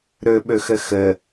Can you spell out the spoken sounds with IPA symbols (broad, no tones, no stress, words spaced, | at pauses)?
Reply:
ɾɵɓɵxə xə